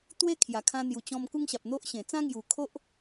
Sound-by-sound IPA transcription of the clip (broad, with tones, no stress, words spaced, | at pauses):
t̪we˦kʰja˨˩ kʰã˧n̪ju˨˩t͡ɕɔ̃˧m ku˦ŋɕa˨p̚n̪o˦ʔɕẽ˨˩ t͡sã˦ŋju˨˩ kʰo˦ʔ